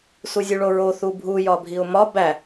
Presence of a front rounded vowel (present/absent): absent